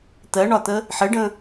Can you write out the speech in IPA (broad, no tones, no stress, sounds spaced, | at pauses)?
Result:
t̪ ɜ ɳ ɒ t̪ ə | ħ ɘ ɖ ə̃